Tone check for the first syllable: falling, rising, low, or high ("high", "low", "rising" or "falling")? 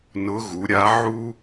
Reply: rising